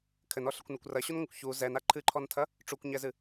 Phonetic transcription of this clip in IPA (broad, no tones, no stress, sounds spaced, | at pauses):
kʰ ɘ n ɔ ɬ ɘ kʷ n ɐ kʷ r ɐ ɕ u n ŋʷ ɐ kʷ ç u z ɛ n a ǃʰ ɨ ǃʰ ɔ n tʰ ɐ | ʈ͡ʂ u kʷ ɲ ɛ z ɨ